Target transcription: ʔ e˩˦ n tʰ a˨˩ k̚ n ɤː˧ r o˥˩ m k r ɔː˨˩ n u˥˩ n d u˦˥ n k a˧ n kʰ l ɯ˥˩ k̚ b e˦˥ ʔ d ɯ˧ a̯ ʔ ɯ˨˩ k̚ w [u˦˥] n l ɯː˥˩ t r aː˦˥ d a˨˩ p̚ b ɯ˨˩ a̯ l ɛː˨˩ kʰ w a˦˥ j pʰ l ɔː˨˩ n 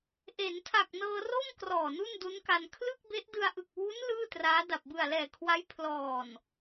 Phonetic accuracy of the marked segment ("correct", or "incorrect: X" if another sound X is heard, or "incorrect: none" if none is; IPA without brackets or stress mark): correct